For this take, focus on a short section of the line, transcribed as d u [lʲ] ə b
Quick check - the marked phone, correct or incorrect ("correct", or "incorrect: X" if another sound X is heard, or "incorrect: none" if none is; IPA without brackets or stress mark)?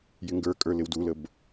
incorrect: l